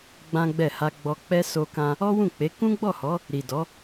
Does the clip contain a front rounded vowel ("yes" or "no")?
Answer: no